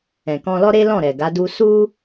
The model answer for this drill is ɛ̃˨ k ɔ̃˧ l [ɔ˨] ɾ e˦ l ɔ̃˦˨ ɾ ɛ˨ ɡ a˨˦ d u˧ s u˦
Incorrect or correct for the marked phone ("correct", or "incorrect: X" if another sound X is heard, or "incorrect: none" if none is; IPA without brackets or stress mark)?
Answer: incorrect: ɔ˦